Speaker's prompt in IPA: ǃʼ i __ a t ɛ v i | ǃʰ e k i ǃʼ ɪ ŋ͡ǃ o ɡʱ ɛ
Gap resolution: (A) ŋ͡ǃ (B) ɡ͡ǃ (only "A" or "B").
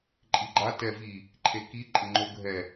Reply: B